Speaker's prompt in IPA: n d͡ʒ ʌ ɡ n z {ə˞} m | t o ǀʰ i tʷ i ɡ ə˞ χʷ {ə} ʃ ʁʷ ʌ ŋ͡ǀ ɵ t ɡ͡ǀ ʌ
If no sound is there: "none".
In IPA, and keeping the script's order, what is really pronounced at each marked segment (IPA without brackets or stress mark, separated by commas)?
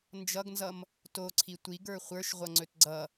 ʌ, ə˞